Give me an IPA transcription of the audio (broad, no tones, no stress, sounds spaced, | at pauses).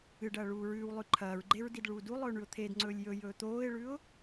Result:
ɨ ɖ ɐː ɭ uː ɹ ʉː w lˠ ʉ ǃʰ ɐː ɹ ɡ͡ǃ e ɹ d i d ɭ uː d u lˠ ɵː ɳ ʉ ʊ̯ t̪ʰ e d ŋ͡ǀ ɵː lʲ j ɵ j ɵː t̪ oː ɪ̯ ɭ ʉ ʊ̯